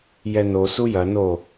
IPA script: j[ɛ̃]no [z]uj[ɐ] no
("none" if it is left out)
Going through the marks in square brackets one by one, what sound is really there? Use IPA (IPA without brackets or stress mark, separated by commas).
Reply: ɛ, s, ɐ